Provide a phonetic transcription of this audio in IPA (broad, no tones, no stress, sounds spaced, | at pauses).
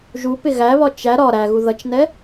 ʒ u p ɪ ɣ æ β ɒ t͡ʃ æ ɾ ɒ ɾ æ ɣ u ð ʌ t͡ʃ n ɛ